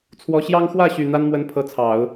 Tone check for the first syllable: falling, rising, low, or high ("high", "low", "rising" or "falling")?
rising